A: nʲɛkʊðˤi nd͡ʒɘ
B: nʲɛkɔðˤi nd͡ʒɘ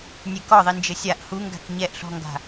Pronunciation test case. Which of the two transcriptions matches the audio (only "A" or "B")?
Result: B